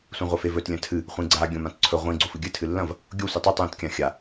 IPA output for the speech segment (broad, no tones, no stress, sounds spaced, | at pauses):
sʷ ĩ ʁʷ ɐ f e v ɵ t lʲ ɐ̃ tʰ ɨ | χʷ ĩ ɡ͡ǀ a ɡʲ õ m ã t ǀʰ ɵ ʁʷ ĩ ɡ͡ǀ o f ɨ ɡʲ ɨ tʰ ɨ lː ɐ̃ v | ɡʲ o sʷ i tˤ i tˤ j ĩ t kʲ ã xʲ a